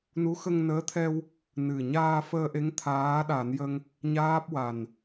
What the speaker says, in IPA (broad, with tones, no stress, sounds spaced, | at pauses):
n u˧˥ x ə˧ ŋ n əː˧˥ t̪ʰ ɛ˧ w | n ɨ˨˩ ɲ aː˧ f əː˧ ʔ e˧˥ ŋ t̪ʰ aː˧˥ ɗ a˨˩˦ n j ə˧ ŋ | ɲ aː˦˥ p̚ w a˨˩ n